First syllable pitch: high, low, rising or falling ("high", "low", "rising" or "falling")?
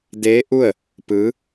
rising